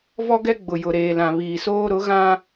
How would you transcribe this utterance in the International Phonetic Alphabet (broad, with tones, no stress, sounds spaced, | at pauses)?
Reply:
v ɔ˦ ɡ ɛ˦ ɡ͡b ʊ˨ j ʊ˨ ɾ eː˨ l ã˨ β iː˨ s oː˦ ɾ ʊ˨˦ ɣ ã˦